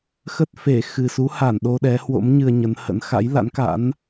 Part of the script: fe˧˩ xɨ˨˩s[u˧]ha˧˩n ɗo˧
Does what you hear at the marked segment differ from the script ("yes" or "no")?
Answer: yes